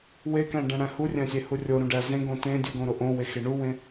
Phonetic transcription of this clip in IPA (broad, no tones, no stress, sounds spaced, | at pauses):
w e k æ̃ ɖ æ̃ ɽ æ̃ h u rʲ æ̃ sʲ e h u rʲ o ɾ ũ ɖ æ z ẽ ɡ õ t ẽ dʲ u ɡ õ ɾ o ʔ õ w e x e ɳ u w ẽ